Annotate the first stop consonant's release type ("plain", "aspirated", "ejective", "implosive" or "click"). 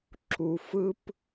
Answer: click